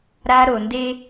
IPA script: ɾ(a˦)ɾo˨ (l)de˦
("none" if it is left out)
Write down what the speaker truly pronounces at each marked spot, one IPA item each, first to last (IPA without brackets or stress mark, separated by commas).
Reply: a˦, n